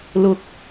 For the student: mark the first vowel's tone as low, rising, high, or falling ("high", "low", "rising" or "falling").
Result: rising